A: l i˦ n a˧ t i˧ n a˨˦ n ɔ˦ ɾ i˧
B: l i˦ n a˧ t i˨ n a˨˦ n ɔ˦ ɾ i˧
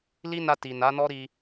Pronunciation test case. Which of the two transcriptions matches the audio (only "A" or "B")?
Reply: B